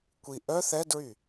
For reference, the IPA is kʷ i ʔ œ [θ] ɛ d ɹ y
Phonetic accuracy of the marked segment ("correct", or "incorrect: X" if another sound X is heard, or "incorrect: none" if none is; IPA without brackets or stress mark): correct